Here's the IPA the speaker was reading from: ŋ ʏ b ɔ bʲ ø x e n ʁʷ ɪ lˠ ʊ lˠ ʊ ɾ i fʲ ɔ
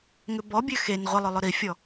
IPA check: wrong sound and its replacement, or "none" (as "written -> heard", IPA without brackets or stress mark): none